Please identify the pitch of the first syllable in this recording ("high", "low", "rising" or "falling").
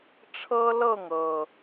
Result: high